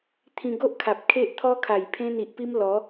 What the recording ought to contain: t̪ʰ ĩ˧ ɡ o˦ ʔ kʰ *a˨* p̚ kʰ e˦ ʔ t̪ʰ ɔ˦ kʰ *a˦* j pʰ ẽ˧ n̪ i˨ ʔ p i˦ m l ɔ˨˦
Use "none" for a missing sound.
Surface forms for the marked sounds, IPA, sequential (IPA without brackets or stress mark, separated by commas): a˨, a˨˩